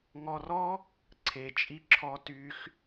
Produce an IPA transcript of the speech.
ŋ ɔ˧ r ɔ˦ | ǀʰ e˨ t͡ʃʼ i˧ ǁʰ ɔ˧ t y˦ x

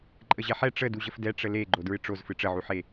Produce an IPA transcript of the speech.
ǃʼ ə ʑ ɛ ħ ɛ ʈ͡ʂ ə d u ʑ ə f d ɛ ʈ͡ʂ ə l e ɡ͡ǃ o d ɹ ɨ ʈ͡ʂ o z f ɨ ʈ͡ʂ ə ʕ u ħ e

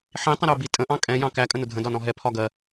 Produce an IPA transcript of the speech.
ħ ĩ tˤ ə̃ ɾ ə o̯ b i tʼ ə̃ ʔ ɑ̃ kʼ ɛ̃ j ɑ̃ k æ kʼ ə̃ n ʊ dʱ ə̃ d ɒ n ɔ̃ ɦ ɛ pʰ ɒ ɡ ɜ

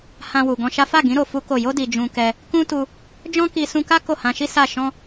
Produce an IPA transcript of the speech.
h ã˧ w u˨ ɡ ɔ̃˧ ʃ a˦ f a˦˨ ɡ ĩ˨˦ ɾ o˧ f u˦ k o˦˨ j o˧ d i˨ d͡ʒ ũ˧ k ɛ˧ | k ũ˦ t u˧ | d͡ʒ ɔ̃˦ k i˧ s ũ˧ k a˦ k o˦˨ h ã˧ ʃ i˦ s a˦˨ ʃ ɔ̃˧

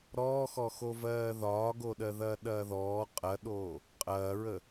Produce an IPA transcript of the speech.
ɾ ɔː x ɔ x o v ɜː ð ɒː ɡ o ɗ ɜ ð ɐː ɗ ɐː ð ɔː qʼ ɐ ɗ oː | qʼ ɐː ɹ ə

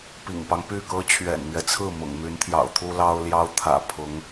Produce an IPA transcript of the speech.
p ḭ˨˩ ŋ p ɑ˦ ŋ p y˥˩ k ɤ˥ t͡ɕʰ ɥ ɛ̰˨˩ n m ɥ ɛ˦ t͡sʰ ɹ̩˥˩ m ʊ̰˨˩ ŋ m y˧˥ n t̪ʰ j ɑ̰˨˩ ʊ̯ t̪ʰ u˥ l ɑ˥ ʊ̯ l j ɑ˥ ʊ̯ t̪ʰ ä̰˨˩ pʰ ʊ˧˥ ŋ

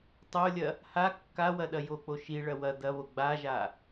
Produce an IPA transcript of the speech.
tˤ o lʲ ɐ | h a kː a w ɐ ɗ ɐ j o k͡p o ʃ i ɭ ɐ w ɐ d̪ ɐ β o ɡ͡b a ʒ a

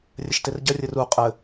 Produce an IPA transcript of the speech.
rʲ ɘ ʃ t e r ɟ ɐ rʲ ɘ r u qʼ ɘ

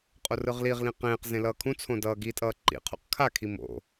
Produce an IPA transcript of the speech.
qʼ o r ɯ ʁ l i ʁ l ĩ q ẽː q z ẽ l ʌː kʰ ũ t͡sʰ õ d ʌː ɡ i tʼ ʌː ǃ ḭ qʰ ṵ q kʰ a kʰ i m o̰

